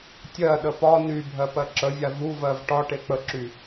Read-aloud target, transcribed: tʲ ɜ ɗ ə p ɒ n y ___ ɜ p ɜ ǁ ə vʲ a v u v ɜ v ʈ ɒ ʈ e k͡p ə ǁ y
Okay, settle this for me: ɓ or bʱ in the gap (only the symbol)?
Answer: bʱ